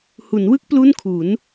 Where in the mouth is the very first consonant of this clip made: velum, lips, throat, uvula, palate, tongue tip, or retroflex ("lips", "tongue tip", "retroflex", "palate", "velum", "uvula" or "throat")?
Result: throat